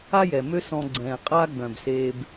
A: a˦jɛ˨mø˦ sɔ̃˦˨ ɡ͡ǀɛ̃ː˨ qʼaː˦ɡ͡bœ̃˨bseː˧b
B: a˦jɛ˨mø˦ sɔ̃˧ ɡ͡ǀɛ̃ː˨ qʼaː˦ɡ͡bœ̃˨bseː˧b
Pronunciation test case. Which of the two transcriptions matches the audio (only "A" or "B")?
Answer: B